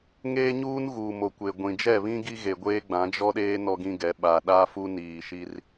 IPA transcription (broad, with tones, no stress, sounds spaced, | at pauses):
ŋ eː˦ ɲ uː˦ n ɣ uː˨ m o˨ kʷ e˨ ɡʷ ĩ˨ d͡ʒ ɛ˦˨ β ĩ˦ ɡ i˦ ɣ e˨ ɡʷ eː˦ ɡ͡b ã˨˦ d͡ʒ ɔ˦ ɗ eː˦ n ɔ˦ ɡ ĩ˦ ɡ ɛ˨˦ ɓ a˨ ɗ a˦ f u˦ n iː˨ ʃ i˦ r